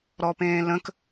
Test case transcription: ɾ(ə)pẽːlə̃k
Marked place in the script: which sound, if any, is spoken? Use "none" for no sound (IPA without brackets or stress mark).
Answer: ɔ